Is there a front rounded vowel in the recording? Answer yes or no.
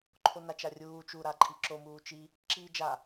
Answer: no